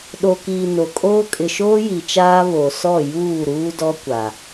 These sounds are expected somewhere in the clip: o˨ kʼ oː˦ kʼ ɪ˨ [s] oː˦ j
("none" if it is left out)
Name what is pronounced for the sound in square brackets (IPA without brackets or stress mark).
ʃ